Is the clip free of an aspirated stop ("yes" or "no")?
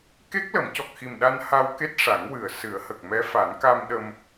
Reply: yes